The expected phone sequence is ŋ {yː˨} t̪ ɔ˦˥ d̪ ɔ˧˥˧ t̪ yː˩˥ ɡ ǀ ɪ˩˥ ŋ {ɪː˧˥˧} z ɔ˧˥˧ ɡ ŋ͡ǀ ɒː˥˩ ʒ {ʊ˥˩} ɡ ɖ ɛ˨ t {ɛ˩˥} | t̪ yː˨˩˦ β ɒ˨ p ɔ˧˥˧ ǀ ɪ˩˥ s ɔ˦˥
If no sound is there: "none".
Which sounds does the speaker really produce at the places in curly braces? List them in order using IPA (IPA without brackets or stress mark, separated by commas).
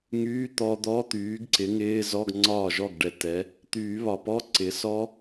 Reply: yː˧˥˧, ɪː˧˥˧, ɔ˥˩, ɛ˩˥